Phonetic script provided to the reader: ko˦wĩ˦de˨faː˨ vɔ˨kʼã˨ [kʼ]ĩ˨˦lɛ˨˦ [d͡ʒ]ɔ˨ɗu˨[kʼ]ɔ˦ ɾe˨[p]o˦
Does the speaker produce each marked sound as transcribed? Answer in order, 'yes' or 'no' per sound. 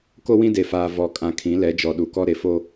no, yes, no, no

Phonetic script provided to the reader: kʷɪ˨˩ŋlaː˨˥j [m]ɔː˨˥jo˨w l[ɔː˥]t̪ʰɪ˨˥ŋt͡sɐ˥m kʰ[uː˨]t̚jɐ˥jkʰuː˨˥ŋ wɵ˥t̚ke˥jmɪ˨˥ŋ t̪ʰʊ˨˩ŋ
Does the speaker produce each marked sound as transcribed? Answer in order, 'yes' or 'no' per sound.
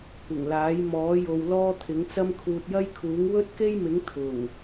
yes, yes, yes

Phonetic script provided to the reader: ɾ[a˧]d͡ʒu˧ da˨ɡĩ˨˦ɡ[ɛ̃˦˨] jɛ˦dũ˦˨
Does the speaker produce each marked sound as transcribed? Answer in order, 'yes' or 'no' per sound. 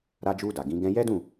yes, no

